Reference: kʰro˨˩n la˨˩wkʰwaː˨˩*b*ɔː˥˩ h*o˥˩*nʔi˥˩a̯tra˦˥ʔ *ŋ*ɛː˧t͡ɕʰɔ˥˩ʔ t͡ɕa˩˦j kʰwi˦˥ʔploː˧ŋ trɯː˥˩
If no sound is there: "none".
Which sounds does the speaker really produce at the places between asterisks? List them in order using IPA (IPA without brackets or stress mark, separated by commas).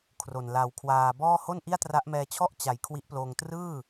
b, o˥˩, m